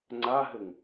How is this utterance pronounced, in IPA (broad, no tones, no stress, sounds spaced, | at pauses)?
ŋ͡ǀ a ɦ ɘ ŋ